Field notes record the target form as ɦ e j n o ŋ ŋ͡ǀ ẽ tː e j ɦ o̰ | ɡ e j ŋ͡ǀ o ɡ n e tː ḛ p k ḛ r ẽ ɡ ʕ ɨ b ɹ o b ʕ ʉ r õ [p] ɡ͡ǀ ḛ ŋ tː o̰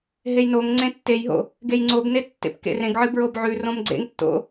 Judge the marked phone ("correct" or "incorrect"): incorrect